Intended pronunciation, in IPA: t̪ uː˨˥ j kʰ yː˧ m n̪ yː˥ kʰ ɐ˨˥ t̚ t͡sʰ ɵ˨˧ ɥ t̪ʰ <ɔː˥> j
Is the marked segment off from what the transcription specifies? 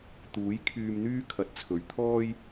no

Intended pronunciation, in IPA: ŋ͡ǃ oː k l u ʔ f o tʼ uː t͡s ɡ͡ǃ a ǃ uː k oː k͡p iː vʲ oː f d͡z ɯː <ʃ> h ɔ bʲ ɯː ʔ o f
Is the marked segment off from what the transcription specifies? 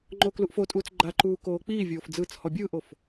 yes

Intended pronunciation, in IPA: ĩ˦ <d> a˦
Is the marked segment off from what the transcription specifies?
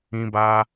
yes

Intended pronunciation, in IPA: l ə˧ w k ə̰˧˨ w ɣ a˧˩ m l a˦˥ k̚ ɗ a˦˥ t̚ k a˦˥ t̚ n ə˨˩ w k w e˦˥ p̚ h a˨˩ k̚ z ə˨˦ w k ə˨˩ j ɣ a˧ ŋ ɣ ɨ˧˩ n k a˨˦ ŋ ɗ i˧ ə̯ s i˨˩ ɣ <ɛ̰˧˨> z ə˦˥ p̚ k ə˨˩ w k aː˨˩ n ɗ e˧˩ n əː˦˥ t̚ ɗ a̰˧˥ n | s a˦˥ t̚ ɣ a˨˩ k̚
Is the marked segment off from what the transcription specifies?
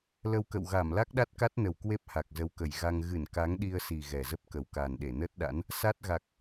yes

